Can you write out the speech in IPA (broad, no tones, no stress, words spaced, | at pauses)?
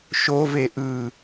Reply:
ʃove ʔɯ